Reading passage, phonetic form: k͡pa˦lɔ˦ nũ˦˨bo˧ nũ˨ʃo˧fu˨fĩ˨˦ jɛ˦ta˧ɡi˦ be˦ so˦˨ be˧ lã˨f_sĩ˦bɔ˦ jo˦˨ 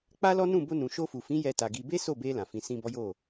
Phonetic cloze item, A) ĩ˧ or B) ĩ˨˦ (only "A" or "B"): B